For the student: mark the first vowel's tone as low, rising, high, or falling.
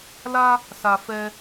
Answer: high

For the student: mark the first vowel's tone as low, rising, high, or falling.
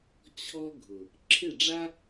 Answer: high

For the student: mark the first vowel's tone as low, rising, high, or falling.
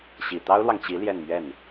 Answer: low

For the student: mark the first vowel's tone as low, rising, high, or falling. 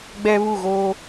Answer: high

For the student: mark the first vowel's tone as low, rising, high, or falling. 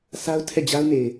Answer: high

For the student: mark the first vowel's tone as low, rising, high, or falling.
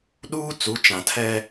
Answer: high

